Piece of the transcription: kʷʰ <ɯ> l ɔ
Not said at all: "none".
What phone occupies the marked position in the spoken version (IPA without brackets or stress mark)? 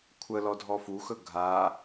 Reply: ə